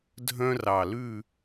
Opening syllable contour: high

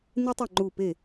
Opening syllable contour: high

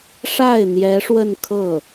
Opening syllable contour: falling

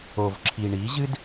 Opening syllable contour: low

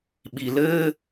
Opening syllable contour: low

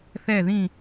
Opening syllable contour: falling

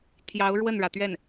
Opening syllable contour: rising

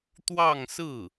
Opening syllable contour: falling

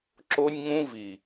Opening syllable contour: high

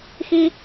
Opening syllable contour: high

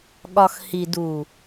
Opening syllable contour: low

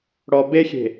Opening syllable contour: low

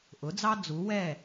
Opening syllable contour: rising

